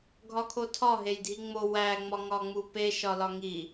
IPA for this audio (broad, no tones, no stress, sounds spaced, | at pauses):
ɡʱ ɒ kʰ o tʰ ɒ ɦ e j dʱ i ŋ͡m o w æ ŋ͡m ɒ ŋ ɒ ŋ͡m u p e ʃ ɒ l ɒ ŋ i